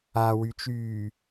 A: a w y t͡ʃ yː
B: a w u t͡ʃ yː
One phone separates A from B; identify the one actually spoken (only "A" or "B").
A